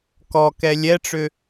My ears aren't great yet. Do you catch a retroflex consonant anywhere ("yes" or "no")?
yes